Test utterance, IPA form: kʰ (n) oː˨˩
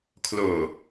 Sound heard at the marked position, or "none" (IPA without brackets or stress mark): l